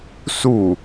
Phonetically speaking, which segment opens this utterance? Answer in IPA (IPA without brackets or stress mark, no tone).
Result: s